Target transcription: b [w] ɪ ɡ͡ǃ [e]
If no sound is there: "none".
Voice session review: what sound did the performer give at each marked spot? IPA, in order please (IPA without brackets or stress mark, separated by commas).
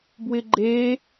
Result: w, e